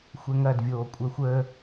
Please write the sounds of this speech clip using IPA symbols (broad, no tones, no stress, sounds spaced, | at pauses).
xʷ ɛ ŋ ɐ d vʲ oː kʷʼ œ xʷ əː